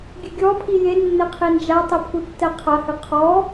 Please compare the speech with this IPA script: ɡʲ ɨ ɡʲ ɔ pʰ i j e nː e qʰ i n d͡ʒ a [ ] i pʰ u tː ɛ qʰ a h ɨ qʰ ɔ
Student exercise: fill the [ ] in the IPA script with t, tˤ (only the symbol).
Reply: tˤ